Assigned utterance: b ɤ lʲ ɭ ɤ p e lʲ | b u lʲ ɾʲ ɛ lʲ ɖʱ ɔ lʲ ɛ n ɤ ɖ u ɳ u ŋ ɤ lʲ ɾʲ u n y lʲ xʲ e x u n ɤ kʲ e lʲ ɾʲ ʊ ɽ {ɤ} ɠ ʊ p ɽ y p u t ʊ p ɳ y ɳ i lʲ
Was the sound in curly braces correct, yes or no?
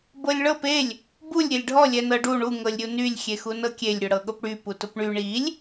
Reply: yes